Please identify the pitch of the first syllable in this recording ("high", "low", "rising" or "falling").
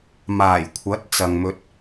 low